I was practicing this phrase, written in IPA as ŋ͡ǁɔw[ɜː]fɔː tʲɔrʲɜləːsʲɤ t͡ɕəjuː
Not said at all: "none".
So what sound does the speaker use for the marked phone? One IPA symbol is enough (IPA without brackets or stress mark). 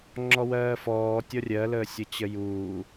ɜː